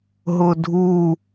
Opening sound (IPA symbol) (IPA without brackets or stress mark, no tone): ɦ